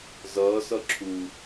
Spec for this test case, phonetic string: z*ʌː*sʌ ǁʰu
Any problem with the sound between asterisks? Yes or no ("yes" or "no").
no